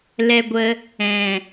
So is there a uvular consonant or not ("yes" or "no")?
no